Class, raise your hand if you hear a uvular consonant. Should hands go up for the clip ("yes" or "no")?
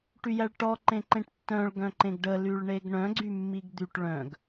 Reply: no